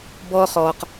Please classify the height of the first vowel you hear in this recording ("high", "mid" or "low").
mid